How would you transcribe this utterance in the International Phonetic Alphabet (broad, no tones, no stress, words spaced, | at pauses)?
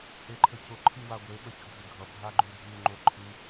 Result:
ʔeǃʰəcʊ ǃʰɨwaɡʷe ɓəçəɡʱɨɡʱʌ bʱaɡ͡ǃʉdʱʉ ŋ͡ǃoǃʰɨ